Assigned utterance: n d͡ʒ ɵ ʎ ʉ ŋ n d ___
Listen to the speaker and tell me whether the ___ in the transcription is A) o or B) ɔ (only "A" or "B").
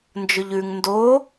A